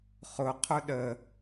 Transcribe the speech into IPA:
χʊ qʰʊɗə

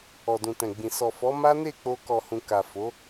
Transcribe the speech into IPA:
ɔ˨dũ˨tɛ̃˨ɡ͡bĩ˨ sɔ˨fɔ˨˦ ma˦ne˦˨ k͡po˧kɔ˨hũ˨ ka˨fo˨˦

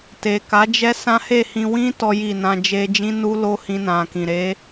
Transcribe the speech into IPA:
te˨ka˨˦d͡ʒɛ˦ sã˦he˦˨hĩ˧ wĩ˦ tɔ˦ji˦˨nã˧ d͡ʒe˧d͡ʒĩ˦nu˦ lo˦hĩ˧nã˨kĩ˨ ɾe˨˦

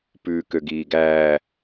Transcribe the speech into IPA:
pʉːkøɡiːɡæː

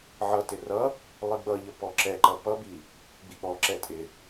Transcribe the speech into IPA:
ʕʌtɪ rʌ | lˠiɡ͡bʌʎʌ pɔǁɛǃʌ pʌbi | ɡ͡bik͡pɔǁɛ tʼɪ

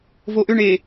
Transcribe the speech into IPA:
voʔʏɳe

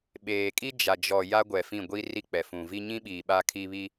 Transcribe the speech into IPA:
ɓeː˨ kʼi˦ d͡ʒa˨d͡ʒɔ˨ ja˦ɡʷɛ˨fĩ˦˨ ɡʷi˦ ri˦k͡pɛ˨ fũ˨vi˦ ɲĩ˦ɓiː˨ ɓa˦kʰi˦ βi˦

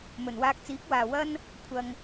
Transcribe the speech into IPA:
mɵ˨˩nwaː˧k̚t͡siː˨˥k̚waː˨ wɐ˥n | kʷʰɐ˧ŋ

